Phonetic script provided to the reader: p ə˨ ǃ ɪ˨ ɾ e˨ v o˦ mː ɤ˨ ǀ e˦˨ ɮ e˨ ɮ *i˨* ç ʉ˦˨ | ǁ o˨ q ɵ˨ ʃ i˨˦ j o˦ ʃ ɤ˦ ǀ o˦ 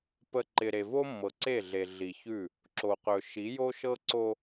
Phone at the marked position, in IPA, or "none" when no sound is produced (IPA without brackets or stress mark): i˨